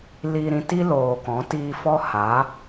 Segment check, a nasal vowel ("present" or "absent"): present